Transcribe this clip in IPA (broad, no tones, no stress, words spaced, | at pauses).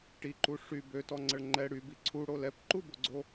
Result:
ʈiǃu ʂy bøtɔŋ͡ǀəɭ ŋ͡ǃɛ ɽybi ǀʰuɽo lɛpǃuboɡ͡ǀo